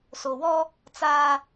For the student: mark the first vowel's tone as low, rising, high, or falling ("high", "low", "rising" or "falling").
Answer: low